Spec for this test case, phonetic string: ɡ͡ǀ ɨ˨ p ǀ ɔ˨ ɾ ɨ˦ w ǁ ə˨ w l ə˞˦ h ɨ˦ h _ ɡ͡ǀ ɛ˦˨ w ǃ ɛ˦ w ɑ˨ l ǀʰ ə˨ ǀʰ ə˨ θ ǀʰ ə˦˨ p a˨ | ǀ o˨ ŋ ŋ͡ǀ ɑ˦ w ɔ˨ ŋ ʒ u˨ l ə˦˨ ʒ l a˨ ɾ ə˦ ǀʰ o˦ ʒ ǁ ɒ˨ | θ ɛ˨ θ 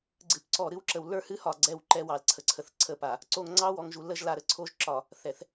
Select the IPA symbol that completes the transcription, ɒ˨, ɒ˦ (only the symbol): ɒ˨